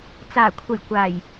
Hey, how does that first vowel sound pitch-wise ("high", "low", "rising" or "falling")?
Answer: low